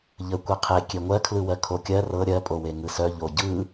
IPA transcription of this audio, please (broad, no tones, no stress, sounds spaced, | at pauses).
ʎ ə kʷ e qʰ e kʲ e ŋʷ ɜ kʰ l ɯ w ɜ kʰ o kʲ ɜ r ɤ ɾʲ ɜ pʼ o w e ŋ ɯ s œ ʎ o ɟ ɯ